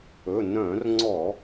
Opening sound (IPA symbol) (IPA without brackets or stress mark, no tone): ɵ